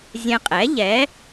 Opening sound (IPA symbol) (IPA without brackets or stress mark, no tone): zʲ